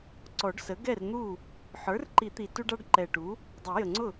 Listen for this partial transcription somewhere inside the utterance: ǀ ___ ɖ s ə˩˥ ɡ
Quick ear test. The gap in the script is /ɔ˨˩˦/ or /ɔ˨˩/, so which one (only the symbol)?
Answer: ɔ˨˩˦